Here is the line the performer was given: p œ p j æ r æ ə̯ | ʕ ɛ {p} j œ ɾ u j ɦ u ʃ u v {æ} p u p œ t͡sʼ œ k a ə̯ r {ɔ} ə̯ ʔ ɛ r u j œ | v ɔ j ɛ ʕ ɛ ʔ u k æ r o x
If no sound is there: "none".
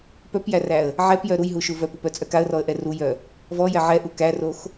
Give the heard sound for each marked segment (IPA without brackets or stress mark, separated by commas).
p, œ, ɔ